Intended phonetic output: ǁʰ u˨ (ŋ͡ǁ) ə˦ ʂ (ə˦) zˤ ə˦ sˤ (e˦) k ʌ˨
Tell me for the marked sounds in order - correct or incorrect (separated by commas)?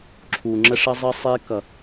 correct, correct, correct